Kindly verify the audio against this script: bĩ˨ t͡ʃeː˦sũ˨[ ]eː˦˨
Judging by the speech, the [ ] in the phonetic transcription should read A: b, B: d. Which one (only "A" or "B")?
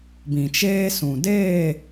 B